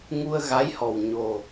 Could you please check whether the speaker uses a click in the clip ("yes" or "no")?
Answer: no